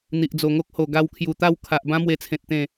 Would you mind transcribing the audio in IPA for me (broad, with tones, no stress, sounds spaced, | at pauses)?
n̪ i˨ ʔ d͡z o˨˩ ŋ o˦ k̚ h o˨˩ ɡ a˧ w kʰ j u˨˩ t̪ a˥˧ w kʰ a˨ ʔ b ã˦ m w e˧ t͡sʰ ẽ˨ t̚ t̪ ẽ˨˩